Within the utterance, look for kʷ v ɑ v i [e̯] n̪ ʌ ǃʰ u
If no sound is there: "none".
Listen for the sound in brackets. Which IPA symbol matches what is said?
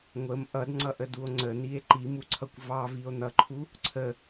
o̯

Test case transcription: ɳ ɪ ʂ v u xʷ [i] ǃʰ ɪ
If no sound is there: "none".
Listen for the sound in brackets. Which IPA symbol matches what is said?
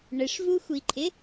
i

